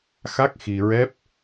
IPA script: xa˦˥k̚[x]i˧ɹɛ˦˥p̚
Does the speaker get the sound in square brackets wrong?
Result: no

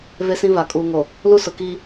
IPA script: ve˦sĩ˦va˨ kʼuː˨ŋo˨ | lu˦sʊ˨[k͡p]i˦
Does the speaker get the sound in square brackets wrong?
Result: yes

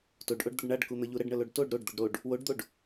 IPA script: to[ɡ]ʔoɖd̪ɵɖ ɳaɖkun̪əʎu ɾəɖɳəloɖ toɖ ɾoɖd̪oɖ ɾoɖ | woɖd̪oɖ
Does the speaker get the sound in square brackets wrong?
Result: yes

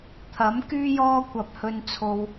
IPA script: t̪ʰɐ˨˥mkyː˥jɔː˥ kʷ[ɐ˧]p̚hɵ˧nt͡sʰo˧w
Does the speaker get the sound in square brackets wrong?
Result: no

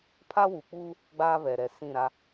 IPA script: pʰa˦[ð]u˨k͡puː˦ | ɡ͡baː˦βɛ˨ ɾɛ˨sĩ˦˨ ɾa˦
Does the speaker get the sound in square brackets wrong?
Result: yes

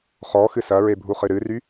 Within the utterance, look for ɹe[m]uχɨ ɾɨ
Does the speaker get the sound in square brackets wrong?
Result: yes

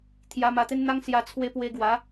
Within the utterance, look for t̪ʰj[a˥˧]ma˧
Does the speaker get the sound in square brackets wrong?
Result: yes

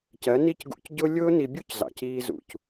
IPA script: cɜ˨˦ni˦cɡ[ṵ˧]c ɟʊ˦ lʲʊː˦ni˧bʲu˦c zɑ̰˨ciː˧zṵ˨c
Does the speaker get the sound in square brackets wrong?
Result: no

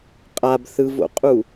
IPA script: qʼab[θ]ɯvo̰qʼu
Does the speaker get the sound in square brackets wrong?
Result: no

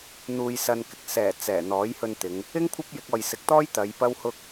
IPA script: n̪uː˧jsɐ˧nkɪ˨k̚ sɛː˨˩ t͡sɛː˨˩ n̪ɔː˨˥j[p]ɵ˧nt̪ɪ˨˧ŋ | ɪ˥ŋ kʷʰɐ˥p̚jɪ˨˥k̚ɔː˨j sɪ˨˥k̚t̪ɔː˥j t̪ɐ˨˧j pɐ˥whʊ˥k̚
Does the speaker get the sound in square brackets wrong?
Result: yes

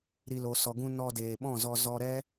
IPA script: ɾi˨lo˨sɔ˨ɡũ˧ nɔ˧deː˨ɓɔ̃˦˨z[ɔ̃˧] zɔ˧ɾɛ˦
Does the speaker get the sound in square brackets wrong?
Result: yes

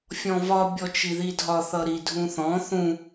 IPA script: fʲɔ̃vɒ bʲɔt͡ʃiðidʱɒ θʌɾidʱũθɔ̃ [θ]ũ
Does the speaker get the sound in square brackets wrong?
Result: no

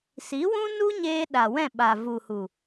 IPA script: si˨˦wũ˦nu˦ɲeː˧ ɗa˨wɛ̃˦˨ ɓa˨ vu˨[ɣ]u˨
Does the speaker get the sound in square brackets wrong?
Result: yes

